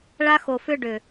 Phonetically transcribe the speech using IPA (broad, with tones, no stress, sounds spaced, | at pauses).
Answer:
ɭ a˦ x o˨ f ʏ˦ ɖ ʏ˨